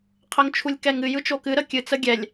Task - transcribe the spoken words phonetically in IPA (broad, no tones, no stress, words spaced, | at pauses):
qʰəŋt͡ʃʰulʲkɛŋɨ jɯt͡ʃokɨ ɾəkʲɨ t͡səɡʲɛlʲ